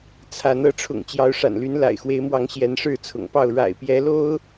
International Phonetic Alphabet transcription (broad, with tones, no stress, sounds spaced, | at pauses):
t͡sʰ a˨˦ n ɤ˨˦ ʈ͡ʂʰ ʊ̰˨˩ ŋ t͡ɕ j ɑ˨˦ ʊ̯ ʂ a̰˨˩ n l y˨˦ n l a̰˨˩ ɪ̯ x w e˨˦ ɪ̯ m w ɑ˨˦ ŋ ɕ j ɛ˨˦ n ʂ ɻ̩˥˨ t͡sʰ ʊ̰˨˩ ŋ p ɑ˥˨ ʊ̯ ɻ a̰˨˩ ɪ̯ p j ɛ˨˦ l o˦ ʊ̯